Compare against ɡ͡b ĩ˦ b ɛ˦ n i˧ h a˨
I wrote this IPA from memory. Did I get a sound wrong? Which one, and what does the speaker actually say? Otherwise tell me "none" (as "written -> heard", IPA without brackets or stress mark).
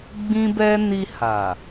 none